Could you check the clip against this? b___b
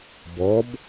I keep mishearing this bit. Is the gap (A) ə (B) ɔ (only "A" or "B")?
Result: B